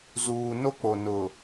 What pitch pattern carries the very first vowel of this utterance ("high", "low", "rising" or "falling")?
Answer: low